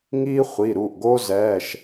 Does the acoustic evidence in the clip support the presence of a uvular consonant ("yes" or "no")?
yes